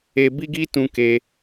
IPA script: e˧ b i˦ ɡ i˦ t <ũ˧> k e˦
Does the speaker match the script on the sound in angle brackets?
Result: yes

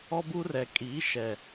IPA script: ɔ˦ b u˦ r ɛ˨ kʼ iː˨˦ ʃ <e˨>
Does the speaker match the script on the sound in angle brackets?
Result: no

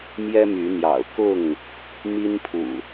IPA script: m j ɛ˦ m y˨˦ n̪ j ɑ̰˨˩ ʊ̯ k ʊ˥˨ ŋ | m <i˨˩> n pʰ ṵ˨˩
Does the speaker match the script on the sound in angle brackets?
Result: no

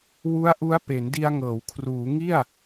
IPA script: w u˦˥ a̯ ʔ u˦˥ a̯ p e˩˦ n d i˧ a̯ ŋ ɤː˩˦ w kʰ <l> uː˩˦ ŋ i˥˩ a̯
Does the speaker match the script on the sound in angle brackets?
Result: no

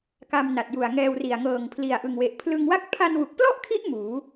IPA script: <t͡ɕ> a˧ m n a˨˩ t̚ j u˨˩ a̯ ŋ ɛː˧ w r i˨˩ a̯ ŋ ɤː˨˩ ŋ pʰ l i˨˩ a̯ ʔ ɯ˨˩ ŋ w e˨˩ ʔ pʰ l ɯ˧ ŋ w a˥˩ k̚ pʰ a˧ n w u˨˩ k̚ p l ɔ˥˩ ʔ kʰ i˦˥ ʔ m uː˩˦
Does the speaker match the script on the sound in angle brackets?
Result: no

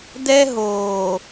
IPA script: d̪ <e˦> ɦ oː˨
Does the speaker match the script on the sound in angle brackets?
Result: no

